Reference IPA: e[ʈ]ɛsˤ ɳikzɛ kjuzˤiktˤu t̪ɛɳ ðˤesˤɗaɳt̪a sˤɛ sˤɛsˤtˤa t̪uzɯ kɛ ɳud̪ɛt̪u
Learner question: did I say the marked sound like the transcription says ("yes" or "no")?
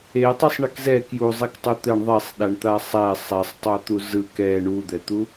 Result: no